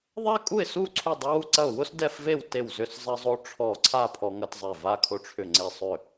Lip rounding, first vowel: unrounded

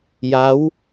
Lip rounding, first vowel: unrounded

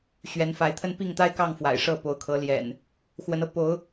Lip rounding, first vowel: unrounded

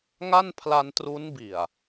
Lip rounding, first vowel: unrounded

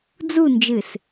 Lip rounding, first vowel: rounded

